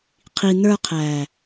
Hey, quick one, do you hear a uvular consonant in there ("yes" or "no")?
yes